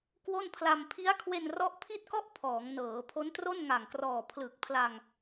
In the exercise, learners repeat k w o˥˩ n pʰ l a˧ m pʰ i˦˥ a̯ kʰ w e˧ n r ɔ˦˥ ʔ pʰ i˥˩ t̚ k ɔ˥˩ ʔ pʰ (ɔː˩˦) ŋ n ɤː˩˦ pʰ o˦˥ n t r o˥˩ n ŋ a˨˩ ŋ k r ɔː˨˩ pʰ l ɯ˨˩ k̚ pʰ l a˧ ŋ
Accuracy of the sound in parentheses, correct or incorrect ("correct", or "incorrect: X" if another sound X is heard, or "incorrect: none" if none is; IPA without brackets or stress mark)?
correct